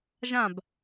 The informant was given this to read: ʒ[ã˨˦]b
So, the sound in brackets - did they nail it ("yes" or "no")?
no